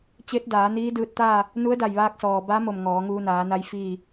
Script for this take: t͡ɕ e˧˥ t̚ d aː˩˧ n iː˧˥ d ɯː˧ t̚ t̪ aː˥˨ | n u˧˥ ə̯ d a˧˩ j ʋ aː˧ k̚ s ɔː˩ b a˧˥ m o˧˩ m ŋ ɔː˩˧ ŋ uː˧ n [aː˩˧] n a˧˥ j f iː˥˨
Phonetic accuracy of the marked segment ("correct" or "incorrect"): correct